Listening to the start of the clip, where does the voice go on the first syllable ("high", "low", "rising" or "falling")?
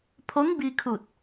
rising